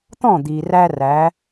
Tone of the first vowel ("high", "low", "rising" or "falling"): falling